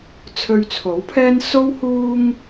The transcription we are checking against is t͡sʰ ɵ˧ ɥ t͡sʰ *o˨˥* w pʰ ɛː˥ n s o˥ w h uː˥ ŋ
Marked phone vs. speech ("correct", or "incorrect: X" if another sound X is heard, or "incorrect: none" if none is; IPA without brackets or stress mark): correct